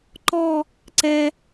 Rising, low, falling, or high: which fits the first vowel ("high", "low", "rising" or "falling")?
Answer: falling